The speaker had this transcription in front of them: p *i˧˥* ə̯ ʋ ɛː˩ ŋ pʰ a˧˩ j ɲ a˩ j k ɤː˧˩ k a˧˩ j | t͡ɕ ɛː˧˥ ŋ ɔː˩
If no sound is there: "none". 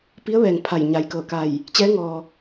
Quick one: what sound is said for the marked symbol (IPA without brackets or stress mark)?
i˧˥